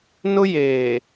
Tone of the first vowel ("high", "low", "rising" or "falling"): high